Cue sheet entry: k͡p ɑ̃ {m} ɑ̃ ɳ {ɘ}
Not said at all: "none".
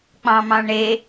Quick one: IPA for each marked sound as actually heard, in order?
m, e

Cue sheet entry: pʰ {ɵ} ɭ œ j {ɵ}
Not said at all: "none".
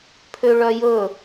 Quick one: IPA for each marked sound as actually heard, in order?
ø, ɵ

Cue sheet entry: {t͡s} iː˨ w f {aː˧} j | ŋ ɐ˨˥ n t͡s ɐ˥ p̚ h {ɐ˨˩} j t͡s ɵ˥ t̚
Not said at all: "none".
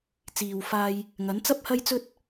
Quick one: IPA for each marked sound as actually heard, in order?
t͡s, aː˧, ɐ˥

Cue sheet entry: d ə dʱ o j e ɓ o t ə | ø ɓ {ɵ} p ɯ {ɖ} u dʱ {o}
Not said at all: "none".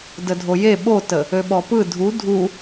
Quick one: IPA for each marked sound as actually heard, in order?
ɔ, dʱ, u

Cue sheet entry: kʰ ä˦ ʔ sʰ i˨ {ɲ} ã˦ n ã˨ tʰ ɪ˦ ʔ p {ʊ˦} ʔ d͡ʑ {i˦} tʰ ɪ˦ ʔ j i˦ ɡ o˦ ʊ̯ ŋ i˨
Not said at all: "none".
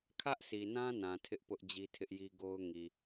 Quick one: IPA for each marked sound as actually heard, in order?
n, ʊ˦, i˦

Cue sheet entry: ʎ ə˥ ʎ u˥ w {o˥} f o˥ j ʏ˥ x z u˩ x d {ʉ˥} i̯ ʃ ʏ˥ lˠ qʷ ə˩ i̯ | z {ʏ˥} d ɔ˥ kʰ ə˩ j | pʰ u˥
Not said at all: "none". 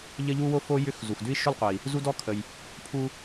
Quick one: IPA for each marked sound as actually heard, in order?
o˥, ʉ˥, u˥

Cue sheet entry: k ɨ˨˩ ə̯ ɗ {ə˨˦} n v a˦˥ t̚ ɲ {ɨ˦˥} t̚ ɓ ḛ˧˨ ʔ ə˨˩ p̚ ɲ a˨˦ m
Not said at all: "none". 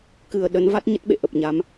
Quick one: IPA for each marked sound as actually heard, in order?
ə˨˦, ə˦˥

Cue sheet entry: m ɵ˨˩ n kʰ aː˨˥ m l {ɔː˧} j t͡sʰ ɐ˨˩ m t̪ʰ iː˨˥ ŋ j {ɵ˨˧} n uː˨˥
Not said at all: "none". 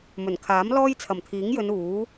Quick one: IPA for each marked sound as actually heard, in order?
ɔː˥, ɵ˨˧

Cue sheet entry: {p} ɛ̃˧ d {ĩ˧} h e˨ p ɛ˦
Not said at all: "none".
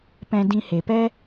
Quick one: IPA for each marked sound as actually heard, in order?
p, ĩ˧

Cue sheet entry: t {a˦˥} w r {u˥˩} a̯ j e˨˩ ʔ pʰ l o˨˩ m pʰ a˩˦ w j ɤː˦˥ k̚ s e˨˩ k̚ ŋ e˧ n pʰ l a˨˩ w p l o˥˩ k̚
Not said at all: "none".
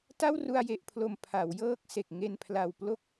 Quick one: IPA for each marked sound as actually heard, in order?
a˥˩, u˧

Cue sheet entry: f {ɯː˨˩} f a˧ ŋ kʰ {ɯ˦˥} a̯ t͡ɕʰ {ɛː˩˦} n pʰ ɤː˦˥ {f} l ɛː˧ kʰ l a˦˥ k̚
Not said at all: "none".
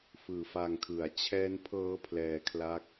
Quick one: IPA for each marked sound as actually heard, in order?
ɯː˨˩, ɯ˨˩, ɛː˦˥, pʰ

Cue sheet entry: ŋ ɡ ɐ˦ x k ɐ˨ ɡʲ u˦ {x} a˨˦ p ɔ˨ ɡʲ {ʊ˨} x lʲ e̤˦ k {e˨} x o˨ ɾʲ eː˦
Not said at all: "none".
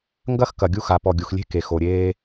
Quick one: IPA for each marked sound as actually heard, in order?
x, u˨, e˨

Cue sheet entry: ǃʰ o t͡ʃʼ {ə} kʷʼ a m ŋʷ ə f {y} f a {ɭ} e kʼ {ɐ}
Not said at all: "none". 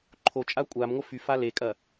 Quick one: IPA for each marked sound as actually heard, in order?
a, y, l, ɐ

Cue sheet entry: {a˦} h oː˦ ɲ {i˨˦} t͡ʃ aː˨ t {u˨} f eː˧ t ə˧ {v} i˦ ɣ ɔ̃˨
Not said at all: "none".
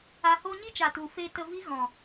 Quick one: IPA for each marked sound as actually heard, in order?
a˧, i˦, u˨, v

